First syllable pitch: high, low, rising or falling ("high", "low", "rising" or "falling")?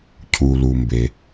low